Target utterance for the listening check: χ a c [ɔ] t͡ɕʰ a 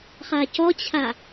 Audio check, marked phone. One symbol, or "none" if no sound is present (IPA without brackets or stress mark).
ɔ